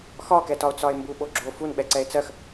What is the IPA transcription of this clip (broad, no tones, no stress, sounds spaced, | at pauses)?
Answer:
x ɒ k ɛ t ɒ o̯ t͡s ɒ e̯ m b u ɓ o ɡ͡ǁ o f u n ɓ ɛ ǀ ɛ e̯ t͡s ɜ x